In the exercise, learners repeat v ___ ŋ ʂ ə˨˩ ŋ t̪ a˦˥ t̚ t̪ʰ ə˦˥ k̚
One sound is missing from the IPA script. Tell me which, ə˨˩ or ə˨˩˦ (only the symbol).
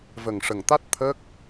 ə˨˩